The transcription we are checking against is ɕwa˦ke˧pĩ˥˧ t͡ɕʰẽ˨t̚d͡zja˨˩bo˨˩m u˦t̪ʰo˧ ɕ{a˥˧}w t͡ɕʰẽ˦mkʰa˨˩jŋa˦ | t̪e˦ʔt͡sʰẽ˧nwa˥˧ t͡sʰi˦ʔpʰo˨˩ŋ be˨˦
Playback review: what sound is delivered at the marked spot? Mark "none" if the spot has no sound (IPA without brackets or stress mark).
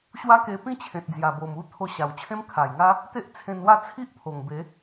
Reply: a˨˩